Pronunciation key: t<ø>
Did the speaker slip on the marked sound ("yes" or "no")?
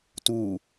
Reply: yes